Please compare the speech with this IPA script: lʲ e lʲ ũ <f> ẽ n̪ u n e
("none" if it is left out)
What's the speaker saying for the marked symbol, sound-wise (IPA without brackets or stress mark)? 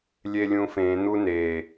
f